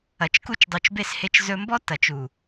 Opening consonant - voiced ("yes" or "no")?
no